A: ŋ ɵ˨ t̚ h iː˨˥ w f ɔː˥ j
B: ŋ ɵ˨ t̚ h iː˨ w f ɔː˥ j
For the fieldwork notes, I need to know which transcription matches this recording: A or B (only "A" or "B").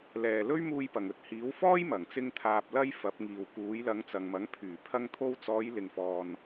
A